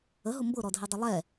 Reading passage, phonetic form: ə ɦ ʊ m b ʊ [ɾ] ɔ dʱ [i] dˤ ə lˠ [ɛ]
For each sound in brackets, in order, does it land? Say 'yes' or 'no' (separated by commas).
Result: yes, yes, yes